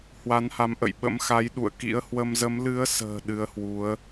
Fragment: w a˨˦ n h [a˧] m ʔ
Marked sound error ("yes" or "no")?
yes